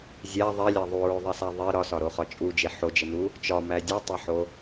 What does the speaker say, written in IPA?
zʲ æ ðˤ e lʲ æ ðˤ u ɹ o ðˤ i s æ ðˤ i ɾ ɒ s ɒ ɾ o χ ɒ t͡ʃʼ u d͡ʒ e ħ o d͡ʒ e n u | t͡ʃ ɒ m æ dʲ u tˤ e ħ o

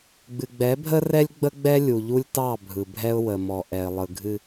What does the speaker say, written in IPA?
ɡ͡b ɨ˨ ɡ͡b ɛ˨˦ bʱ ə˦ r ɛ˦ lʲ ɡ͡b ə˦ ɡ͡b ɛ˦ lʲ u˨ ʎ u˦ lʲ t ɑ˦˨ bʱ ɯ˨ bʱ ɛ˦ ʊ̯ w ə˨ m ɔ˨ ʔ ɛ˨ ɪ̯ lˠ ɯ˨ ɡʱ ɨ˦

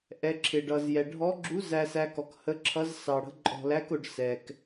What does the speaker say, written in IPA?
ʔ ɛ˧˥ ǁʰ ɪ˧ ɖ ʌ˧ z j ɛ˧ ɖʱ ɔ˧˥ ɡ͡ǁ u˧˥ z æ˧ s æ˧ k ɔ˧ k h ə˧˥ ǁʰ ʌ˧˥ z s ɑ˧ ɽ ə̤˧˥ ǃʼ ɔ̤˧ l æ˧˥ k ʊ˧ ɖ s ɛ˧ k

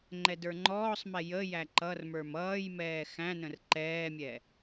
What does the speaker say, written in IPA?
ŋ͡ǃ ɛ d ə˞ ŋ͡ǃ ɔː sˤ m ɛ j ə j æ ǃ ʌ r m ə˞ m ʌː j m ɛː x æ̃ n ə̃ r ǃ ɛː mʲ ɛ

